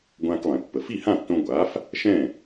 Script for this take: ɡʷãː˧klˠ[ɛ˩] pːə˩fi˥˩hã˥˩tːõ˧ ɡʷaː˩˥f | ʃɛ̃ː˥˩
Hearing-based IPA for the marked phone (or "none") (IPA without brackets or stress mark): ɛ̃˩